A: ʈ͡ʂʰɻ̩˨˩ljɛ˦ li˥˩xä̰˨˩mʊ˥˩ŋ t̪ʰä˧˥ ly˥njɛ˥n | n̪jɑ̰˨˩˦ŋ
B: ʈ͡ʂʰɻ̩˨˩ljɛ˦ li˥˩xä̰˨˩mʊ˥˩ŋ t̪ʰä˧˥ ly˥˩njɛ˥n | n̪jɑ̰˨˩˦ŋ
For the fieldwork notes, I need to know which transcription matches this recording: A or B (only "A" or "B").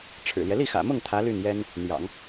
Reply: B